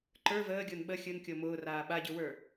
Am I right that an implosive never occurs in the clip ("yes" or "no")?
no